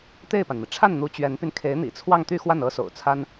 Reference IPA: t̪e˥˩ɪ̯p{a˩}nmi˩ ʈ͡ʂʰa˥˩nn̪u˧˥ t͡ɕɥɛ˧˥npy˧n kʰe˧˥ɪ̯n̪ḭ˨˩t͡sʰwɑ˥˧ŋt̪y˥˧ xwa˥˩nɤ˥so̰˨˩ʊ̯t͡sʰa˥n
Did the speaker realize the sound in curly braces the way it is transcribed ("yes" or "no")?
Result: yes